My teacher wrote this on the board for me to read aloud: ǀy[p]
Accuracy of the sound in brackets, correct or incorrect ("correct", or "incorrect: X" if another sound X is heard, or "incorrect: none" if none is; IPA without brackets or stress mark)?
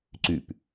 correct